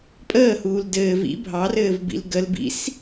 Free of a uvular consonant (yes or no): yes